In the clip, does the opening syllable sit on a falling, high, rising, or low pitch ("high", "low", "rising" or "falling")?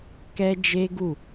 high